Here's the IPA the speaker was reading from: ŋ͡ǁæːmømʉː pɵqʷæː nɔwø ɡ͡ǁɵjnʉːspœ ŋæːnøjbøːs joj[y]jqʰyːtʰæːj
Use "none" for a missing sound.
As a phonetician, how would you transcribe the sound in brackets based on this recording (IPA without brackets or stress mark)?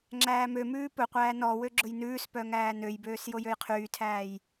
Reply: ø